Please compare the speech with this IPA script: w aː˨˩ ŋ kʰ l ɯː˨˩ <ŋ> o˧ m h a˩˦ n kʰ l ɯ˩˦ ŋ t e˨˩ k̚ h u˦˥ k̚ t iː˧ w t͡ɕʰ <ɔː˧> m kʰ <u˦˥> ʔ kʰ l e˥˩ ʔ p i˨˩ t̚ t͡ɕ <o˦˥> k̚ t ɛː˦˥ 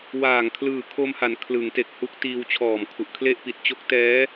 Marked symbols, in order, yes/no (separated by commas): no, no, no, yes